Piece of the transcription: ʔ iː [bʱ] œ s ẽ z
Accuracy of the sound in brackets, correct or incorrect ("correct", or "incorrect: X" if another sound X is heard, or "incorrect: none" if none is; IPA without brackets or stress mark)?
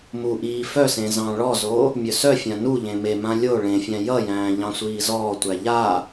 incorrect: f